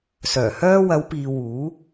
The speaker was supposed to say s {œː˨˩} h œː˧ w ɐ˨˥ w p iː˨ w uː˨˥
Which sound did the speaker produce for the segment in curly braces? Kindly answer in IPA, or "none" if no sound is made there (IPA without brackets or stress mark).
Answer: œː˨˩